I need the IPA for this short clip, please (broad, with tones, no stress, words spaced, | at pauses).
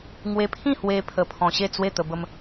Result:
ŋwe˧pʰĩ˥˧hwe˧ pʰə˧pʰɔ̃˧ɕe˥˧t͡swe˥˧ t̪ə˧bə˧m